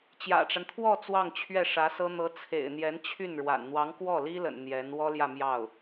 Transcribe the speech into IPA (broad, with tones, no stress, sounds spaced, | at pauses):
t͡ɕ j ä̰˨˩ ʈ͡ʂ a˦ n t̪ʰ w ɔ˥˧ t͡s w ɑ˥˧ ŋ t͡ɕʰ ɥ ɛ˥˩ ʂ ä˧˥ s ɤ˥ n̪ ɤ˧˥ t͡sʰ ḛ˨˩ ɪ̯ n̪ j ɛ˧˥ n t͡ɕʰ y˥˩ n ɻ w a̰˨˩ n n̪ w ɑ˧˥ ŋ k w ɔ˥˩ l i˥ l ə̰˨˩ n n̪ j ɛ˧˥ n w ɔ˥ l j ä˥˧ m j ɑ˥˩ ʊ̯